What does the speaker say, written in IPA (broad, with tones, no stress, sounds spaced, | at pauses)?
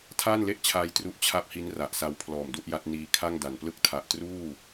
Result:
tʰ aː˥˩ n l e˥˩ ʔ t͡ɕʰ aː˧ j t r u˦˥ ʔ t͡ɕʰ a˥˩ p̚ h i˦˥ n r a˨˩ ʔ s a˦˥ w pʰ l ɔː˨˩ m d u˥˩ ʔ j a˦˥ t̚ n iː˧ kʰ a˥˩ ŋ d a˨˩ n p l ɯ˦˥ k̚ tʰ a˨˩ ʔ t r uː˥˩